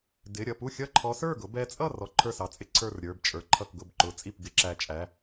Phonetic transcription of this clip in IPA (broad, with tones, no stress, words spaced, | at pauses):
dɪ˩˧˩ɾʲʌ˥˩pu˥˩xʲʌ˥˩ ǃʰɔ˨˦sə˞˥˩ɡʊ˨˦ bɛ˨˦t͡sʼʌ˥˩ rɔ˨˦ǃʰə˞˥˩sɑ˨˦t͡sʼɪ˨˦ ǀʰə˞˥˩rɾʲə˞˩˧˩bt͡ʃʼə˞˩˧˩ǃʰʌ˥˩k ɡʊ˥˩bǃʊ˩˧˩ t͡sʼi˥˩pɡɪ˨˦ǁæ˨˦t͡ʃʼæ˩˧˩